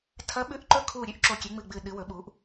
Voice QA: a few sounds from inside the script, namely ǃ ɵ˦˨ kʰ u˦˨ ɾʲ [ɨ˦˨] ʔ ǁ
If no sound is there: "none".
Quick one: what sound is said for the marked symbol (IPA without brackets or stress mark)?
ʉ˦˨